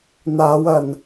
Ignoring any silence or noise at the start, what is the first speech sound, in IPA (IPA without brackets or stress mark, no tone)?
n̪